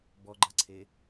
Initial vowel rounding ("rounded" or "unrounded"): rounded